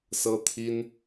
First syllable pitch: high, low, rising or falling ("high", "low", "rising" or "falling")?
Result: high